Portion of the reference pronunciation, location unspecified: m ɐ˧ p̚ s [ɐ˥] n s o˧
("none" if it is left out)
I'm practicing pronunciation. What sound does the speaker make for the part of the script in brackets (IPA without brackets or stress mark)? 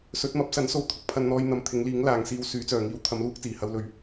ɐ˨˥